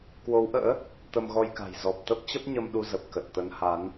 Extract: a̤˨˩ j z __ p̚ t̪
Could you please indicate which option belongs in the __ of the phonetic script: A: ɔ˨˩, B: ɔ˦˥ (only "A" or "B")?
A